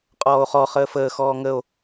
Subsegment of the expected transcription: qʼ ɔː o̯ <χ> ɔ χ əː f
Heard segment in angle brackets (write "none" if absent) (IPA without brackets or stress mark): χ